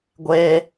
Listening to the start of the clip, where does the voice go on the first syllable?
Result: high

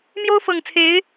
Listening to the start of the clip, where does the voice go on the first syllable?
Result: high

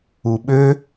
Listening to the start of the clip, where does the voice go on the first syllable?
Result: low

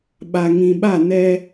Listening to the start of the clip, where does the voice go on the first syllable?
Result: low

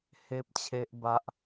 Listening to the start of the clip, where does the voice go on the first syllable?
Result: high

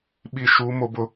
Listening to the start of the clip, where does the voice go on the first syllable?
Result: falling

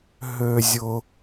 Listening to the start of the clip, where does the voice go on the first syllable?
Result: high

